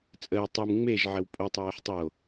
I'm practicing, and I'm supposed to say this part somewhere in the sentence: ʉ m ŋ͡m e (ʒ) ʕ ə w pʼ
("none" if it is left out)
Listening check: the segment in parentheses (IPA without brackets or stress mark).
ʒ